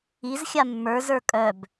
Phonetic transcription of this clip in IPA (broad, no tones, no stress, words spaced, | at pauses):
iz xʲamːə˞ zə˞kʼœb